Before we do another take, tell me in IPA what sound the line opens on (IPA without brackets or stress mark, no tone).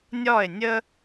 nʲ